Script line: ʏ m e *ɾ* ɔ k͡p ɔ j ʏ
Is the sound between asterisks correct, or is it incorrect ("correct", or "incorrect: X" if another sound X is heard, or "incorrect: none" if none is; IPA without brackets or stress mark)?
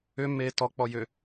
incorrect: t